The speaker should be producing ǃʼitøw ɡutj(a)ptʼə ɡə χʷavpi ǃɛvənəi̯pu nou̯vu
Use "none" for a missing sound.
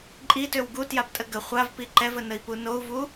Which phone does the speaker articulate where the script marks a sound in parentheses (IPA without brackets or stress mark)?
a